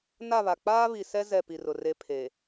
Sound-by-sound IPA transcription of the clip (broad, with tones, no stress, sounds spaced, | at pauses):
n a˦˨ β a˨ k͡p aː˦ β i˨ s ɛ˦ z ɛ˦˨ p i˨ r ʊ˨ r e˦ pʰ e˨